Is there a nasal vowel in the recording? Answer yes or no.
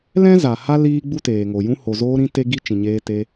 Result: yes